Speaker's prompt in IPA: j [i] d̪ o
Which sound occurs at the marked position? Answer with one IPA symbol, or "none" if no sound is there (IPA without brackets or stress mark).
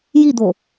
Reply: i